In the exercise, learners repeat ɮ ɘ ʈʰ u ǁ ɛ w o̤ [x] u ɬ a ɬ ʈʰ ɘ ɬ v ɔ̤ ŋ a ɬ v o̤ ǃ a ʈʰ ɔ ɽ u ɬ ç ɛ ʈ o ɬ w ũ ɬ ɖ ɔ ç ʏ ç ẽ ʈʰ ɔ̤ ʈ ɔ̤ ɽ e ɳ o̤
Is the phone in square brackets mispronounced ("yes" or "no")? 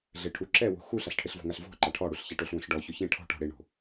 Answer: no